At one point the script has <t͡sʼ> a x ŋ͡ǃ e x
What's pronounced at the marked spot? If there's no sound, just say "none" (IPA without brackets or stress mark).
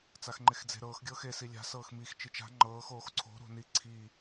t͡s